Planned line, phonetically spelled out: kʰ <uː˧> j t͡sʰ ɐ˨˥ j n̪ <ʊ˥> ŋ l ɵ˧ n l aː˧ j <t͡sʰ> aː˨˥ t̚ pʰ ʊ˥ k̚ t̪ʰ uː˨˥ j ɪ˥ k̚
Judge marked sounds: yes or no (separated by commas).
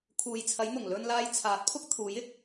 no, no, yes